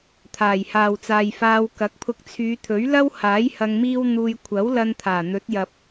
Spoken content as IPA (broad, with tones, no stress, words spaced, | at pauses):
t̪ʰaː˨˩jhaː˨wt͡saː˨jfaː˧w kɐ˨˥k̚pʰʊ˧k̚ t͡sʰyː˨˧t̪ʰɵ˨˥ɥ lɐ˥whaː˨˥j hɐ˧ŋmiː˥wn̪uː˧j kʷʰɐ˨˥wlɐ˧nt̪ʰaː˨˩ n̪ɵ˨˥t̚jɐ˨p̚